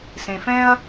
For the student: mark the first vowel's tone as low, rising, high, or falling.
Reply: low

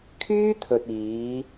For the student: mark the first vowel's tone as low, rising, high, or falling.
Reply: high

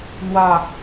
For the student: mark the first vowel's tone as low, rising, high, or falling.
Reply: falling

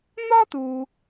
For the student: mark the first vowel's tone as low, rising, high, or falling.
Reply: high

